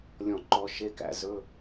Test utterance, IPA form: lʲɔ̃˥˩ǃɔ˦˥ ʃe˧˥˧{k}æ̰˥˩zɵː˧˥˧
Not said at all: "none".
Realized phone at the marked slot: k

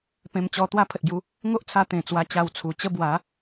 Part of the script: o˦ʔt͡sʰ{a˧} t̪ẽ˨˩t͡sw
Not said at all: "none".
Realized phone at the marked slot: a˧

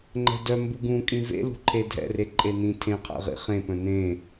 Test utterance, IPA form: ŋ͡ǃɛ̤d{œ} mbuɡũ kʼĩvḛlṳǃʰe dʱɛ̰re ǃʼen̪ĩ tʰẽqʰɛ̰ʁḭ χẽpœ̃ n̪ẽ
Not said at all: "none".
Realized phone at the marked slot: œ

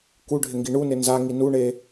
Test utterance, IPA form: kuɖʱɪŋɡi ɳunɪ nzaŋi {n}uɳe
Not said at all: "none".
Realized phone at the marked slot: n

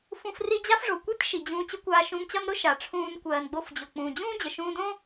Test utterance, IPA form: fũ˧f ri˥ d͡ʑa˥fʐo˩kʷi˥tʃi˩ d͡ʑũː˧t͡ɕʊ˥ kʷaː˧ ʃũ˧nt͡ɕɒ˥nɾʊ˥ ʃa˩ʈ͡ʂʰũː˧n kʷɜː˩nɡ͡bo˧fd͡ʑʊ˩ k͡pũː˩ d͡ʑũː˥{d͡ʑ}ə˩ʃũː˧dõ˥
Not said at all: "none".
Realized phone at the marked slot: d͡ʑ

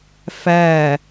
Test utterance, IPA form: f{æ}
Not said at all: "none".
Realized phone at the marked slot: æ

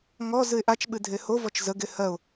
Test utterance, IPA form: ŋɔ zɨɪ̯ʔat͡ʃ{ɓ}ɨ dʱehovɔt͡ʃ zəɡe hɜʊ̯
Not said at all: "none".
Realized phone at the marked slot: ɓ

